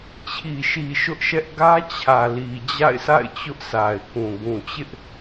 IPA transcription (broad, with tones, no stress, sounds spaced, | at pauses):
t͡ɕʰ i˨ ʃ i˨ ʃ ʊ˦ ʔ ʃ ɛ˦ ʔ ɡ ä˦ t͡ɕʰ ä˨ l i˨ d͡ʑ a̰˦˨ ɪ̯ sʰ a̰˦˨ ɪ̯ t͡ɕ ʊ˦ ʔ sʰ a˨ ɪ̯ k ũ˨ ɡ ũ˨ t͡ɕ ɪ˦ ʔ